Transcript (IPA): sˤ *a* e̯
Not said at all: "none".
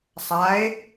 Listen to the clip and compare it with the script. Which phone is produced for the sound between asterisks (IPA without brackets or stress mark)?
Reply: a